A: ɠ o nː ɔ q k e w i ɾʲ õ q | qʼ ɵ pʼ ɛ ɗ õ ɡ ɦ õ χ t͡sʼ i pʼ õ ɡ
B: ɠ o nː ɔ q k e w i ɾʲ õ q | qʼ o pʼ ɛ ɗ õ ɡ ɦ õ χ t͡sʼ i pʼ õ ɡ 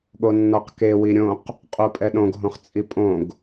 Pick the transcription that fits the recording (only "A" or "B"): B